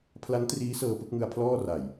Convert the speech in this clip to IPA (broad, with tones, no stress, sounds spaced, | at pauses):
pʰ l a˦˥ n t r iː˦˥ s ɤː˧ p ɯ˥˩ k̚ ŋ ɯ˧ a̯ pʰ l ɔː˥˩ r a˨˩ j